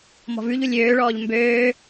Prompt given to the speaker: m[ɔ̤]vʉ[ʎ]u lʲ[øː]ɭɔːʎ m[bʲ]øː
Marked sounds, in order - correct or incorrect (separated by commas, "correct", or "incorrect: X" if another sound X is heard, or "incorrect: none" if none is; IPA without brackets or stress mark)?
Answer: correct, correct, correct, incorrect: b